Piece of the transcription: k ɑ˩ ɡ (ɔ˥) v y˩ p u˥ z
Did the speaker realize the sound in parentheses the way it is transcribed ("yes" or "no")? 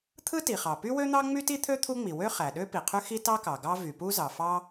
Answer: no